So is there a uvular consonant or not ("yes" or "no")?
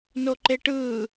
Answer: no